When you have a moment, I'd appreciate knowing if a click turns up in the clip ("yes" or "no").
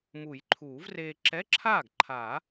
yes